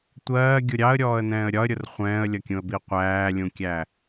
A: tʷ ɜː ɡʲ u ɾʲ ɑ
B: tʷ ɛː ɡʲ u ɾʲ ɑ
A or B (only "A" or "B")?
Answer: A